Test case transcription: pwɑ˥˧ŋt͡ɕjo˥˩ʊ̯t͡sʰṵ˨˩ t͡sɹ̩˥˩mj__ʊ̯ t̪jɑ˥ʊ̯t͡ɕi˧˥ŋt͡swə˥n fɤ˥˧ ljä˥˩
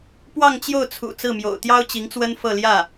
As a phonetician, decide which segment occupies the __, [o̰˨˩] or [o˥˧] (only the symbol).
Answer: o̰˨˩